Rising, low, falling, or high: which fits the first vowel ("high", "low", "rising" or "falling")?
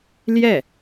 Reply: falling